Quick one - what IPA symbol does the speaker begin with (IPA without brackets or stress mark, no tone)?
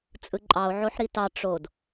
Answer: t͡sʼ